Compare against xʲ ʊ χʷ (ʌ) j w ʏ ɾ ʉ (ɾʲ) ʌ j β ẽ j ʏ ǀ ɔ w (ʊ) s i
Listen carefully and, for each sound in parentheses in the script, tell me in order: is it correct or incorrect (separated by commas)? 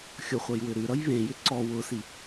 correct, incorrect, correct